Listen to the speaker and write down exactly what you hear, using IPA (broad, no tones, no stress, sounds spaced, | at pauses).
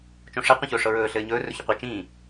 t͡ʃ õ ʂ ɛ qʷ ĩ ç ɵː ʂ ɤ ɹ ɵː ɬ ɘː ɲ ɵː r ɵ ç ɵ qʷ i t͡ʃ ĩː